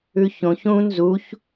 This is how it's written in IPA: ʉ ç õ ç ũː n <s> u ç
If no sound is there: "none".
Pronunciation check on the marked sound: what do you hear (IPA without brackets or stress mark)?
z